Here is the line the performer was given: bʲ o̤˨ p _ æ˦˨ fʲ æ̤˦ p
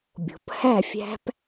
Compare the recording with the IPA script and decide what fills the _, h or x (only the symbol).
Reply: h